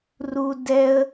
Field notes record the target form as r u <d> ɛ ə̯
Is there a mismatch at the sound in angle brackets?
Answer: no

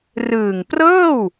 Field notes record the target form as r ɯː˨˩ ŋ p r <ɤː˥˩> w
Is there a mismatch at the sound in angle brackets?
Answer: no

